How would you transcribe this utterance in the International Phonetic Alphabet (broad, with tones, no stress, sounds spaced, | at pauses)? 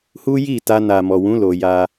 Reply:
h u˦ j i˦˨ t a˧ n a˨ m ɔ˨ w ũ˨˦ l o˧ j a˦